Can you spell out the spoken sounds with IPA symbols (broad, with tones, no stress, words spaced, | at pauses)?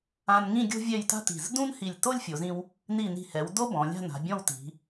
ã˧nŋĩ˥˧ ɡʲo̤˥vʲɛ˥˧jta̤˥ti̤˧˩z dũ˥nhi˧˩lʲ to˥lʲfʲo˩˧zĩ˧w | ni˧˩ni̤˧˩hɛ˩˧w do˥bɔ̃˩˧ lʲa̤˥˧na̤˩˧ bʲɔ̃˥˧wti̤˩˧